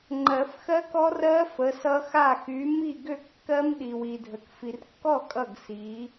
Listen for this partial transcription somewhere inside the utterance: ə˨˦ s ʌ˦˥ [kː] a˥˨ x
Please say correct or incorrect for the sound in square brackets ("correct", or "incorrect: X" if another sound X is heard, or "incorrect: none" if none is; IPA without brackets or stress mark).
incorrect: x